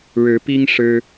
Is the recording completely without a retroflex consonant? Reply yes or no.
no